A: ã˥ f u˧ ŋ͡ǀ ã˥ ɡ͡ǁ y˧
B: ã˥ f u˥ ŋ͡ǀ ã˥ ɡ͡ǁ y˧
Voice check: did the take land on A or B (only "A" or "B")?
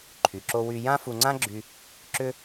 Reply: A